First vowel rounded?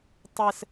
no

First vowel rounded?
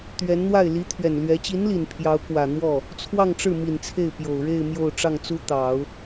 no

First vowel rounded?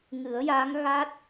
no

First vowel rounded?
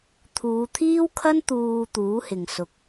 yes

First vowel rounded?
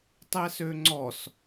no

